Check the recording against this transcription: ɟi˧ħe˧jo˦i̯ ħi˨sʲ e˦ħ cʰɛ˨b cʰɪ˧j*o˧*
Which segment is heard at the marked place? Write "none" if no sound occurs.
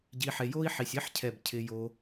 o˧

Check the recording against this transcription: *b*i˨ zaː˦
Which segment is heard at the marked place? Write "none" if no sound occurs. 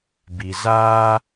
b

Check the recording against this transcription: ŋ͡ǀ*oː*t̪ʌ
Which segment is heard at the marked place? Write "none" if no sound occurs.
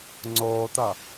oː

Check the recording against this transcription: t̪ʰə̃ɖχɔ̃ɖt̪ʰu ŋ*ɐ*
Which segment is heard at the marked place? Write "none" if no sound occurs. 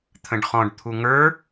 ə˞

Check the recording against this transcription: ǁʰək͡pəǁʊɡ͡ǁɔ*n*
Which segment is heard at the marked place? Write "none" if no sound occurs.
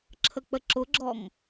ŋ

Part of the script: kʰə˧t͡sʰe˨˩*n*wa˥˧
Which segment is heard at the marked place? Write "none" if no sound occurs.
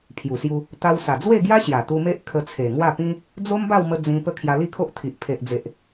ŋ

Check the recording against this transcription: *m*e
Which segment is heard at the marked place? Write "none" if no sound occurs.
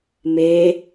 m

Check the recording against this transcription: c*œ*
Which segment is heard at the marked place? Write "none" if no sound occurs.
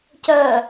œ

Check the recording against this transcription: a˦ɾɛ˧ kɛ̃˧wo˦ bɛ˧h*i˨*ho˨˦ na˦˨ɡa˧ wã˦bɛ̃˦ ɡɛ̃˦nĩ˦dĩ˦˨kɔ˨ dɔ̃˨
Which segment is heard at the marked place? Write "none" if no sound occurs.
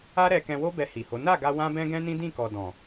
i˨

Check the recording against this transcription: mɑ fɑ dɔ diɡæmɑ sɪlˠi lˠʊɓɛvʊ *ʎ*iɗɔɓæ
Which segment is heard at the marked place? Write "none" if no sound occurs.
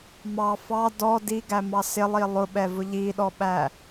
ʎ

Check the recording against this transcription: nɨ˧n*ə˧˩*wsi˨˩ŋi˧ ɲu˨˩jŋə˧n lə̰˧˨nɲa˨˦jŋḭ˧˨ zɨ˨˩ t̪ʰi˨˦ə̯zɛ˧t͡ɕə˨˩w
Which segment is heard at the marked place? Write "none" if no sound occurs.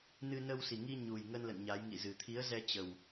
ə˧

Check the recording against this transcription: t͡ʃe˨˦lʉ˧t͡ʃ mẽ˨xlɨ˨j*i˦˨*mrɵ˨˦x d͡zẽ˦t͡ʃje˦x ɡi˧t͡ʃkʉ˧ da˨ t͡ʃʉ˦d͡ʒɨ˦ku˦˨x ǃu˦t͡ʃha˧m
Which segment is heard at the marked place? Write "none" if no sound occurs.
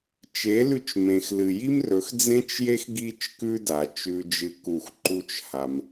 i˦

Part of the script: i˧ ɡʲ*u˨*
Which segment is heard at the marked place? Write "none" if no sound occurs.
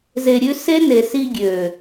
ø˨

